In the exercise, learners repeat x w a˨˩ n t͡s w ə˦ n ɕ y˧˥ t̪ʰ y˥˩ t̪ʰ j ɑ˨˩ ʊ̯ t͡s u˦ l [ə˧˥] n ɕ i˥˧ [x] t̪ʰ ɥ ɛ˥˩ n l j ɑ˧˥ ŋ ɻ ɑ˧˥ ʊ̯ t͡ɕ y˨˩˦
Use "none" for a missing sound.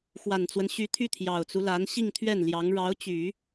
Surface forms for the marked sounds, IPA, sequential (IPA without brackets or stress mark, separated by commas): a˧˥, ŋ